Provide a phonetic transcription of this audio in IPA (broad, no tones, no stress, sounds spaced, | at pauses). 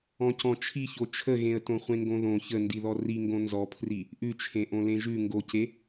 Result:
ɔ̃ c ɔ̃ t͡ʃʰ i ç o t͡ʃʰ ə ɣ ẽ ə̯ t õ χʷ ẽ ŋ ɡ õ ð õ ç ə n d i ð ɔ r i ŋ ɡ õ n z ɔ pʰ r i | ʔ ʉ t͡ʃʰ ẽ ʔ õ l ẽ ʒ ʉ ŋ ɡ o c e